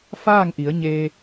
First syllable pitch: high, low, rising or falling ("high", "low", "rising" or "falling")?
falling